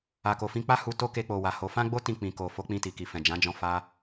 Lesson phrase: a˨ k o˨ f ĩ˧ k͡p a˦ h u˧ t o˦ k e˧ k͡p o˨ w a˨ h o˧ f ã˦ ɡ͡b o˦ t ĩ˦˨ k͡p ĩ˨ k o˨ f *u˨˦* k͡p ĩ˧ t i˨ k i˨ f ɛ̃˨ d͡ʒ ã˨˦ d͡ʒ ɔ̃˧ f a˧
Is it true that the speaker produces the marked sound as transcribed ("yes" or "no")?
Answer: no